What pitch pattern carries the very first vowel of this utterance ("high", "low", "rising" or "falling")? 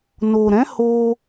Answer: low